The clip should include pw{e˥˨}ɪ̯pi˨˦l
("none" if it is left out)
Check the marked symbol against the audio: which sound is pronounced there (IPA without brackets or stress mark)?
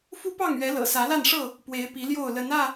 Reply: e˨˦